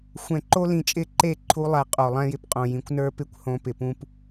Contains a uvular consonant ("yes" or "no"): yes